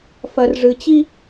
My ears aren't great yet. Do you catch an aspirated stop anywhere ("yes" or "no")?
no